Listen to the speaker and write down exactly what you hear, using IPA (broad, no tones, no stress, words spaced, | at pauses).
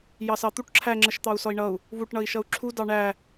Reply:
jɑsɑt̪uʈ ǁʰæŋ͡ǁəʃt̪ɑu̯ sɔi̯ɳʌu̯ | βuʈɳʌi̯ʃʌu̯ ǁʰu dɑɳæ